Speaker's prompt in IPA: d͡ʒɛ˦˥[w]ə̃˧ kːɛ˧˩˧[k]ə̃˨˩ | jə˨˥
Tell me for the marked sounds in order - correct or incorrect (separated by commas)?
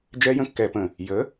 incorrect, incorrect